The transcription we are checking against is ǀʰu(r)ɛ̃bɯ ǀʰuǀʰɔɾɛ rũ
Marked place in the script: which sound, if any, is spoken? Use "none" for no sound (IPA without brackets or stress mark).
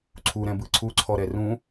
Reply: ɾ